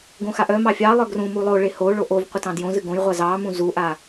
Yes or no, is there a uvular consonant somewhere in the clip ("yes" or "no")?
yes